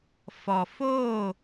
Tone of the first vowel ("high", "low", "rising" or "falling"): low